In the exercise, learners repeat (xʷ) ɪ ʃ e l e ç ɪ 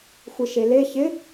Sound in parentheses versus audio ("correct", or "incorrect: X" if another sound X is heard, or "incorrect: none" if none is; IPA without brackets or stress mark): correct